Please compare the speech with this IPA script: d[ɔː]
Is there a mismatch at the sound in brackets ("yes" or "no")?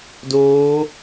yes